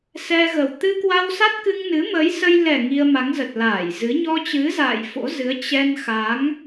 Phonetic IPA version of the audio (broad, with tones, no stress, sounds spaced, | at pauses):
s ɛ˧ ɣ ə˨˩ w t̪ ɨ˧ k w a˧ w s a˦˥ t̚ k ɨ˧ ŋ n ɨ˨˦ m əː˨˦ j s ə˧ j l ɛ˨˩ ŋ i˧ ə̯ m a˨˦ ŋ z ə˨˩ t̚ l aː˧˩ j z ɨ˨˦ ɲ ɔ˧ t͡ɕ ɨ˨˦ z a̰ː˧˨ j f o̰˧˥ z ɨ˨˦ ə̯ t͡ɕ ɛ˧ n x a˨˦ ŋ